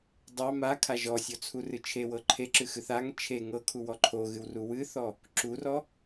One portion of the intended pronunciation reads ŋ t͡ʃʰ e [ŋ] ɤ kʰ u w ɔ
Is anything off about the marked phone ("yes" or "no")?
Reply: no